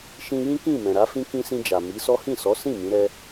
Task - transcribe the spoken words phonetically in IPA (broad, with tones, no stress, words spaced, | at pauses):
ʃĩ˧jĩ˦kĩ˦˨ mɛ̃˨ɾa˨˦fĩ˦ kĩ˧sĩ˧d͡ʒa˨ mi˨˦sɔ˦ hĩ˦˨sɔ˨˦ sĩ˦˨ mĩ˨˦ɾɛ˦